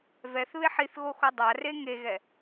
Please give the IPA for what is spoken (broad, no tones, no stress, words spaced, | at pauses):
vɛθβeħ iθɣoxo dˤare ŋeɣɛ